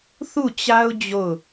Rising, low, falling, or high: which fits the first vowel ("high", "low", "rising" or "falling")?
falling